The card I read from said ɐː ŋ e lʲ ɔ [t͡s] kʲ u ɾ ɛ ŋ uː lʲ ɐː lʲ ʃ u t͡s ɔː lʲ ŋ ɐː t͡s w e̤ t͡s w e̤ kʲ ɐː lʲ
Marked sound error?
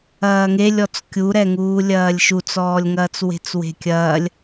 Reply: no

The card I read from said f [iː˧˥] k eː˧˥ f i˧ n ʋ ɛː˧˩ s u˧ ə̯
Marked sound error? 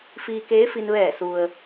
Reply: yes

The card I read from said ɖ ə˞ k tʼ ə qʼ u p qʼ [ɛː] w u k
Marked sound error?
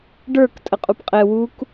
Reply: yes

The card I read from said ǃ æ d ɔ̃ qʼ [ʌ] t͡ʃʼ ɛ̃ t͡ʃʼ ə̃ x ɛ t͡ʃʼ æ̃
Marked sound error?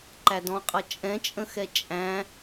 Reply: no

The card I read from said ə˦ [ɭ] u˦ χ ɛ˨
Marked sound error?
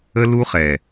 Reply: yes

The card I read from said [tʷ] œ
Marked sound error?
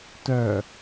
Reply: yes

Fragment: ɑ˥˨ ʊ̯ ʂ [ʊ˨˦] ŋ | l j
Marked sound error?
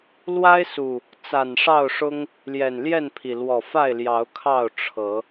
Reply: yes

